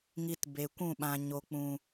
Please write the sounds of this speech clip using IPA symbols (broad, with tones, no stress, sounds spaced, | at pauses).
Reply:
ŋ i˧ t b e˨ kʷ ũ˦˨ ɓ ã˨ ɲ o˨ k͡p ũ˨